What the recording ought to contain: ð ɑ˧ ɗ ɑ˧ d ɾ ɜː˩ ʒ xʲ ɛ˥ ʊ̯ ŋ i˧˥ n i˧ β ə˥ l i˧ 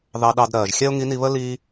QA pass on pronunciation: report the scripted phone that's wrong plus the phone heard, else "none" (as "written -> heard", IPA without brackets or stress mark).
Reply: none